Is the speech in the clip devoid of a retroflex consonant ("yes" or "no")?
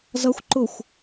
yes